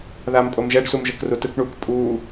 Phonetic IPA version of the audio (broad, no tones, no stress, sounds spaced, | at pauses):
ð aː m pʼ o m ʒ ɛ ɖ s u m ʒ ɤ k r u t ɯ k ɳ uː k pʼ uː